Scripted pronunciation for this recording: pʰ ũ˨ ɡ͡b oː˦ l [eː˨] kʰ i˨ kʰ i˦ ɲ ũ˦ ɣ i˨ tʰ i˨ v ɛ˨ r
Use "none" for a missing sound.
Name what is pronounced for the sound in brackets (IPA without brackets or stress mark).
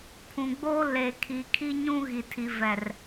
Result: eː˨